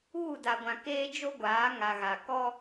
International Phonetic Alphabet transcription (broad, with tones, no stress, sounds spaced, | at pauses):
uː˦˨ d a˨ ɡʷ ã˨ k eː˦ d͡ʒ o˦ ɡʷ aː˨˦ ŋ a˨ ɣ a˨ k ɔ˦